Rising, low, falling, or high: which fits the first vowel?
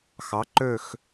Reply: rising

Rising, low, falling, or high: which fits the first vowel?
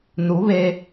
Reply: rising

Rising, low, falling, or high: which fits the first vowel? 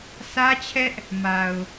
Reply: high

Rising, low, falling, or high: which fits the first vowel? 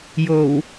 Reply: low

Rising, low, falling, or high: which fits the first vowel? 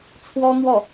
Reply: high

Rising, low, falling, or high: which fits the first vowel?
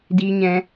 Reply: high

